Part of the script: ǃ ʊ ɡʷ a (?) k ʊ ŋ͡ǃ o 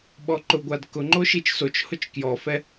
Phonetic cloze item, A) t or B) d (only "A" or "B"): B